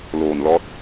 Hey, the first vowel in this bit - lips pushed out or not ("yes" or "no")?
yes